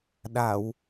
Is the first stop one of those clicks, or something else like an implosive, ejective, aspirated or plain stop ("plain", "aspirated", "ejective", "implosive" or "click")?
implosive